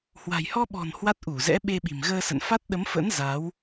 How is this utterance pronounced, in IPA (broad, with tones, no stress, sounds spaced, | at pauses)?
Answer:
h w a̤˨˩ j h ɔ˧ ɓ ɔ̤˨˩ n h w a˦˥ t̚ ʔ u˧˩ z ɛ̰˧˥ ɓ e˧ ɓ i̤˨˩ m ɣ əː˧ s ə̰˧˨ n f a˦˥ t̚ ɗ ə˨˦ m f ə̰˧˥ n z a˨˦ w